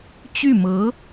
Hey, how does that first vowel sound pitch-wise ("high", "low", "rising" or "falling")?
falling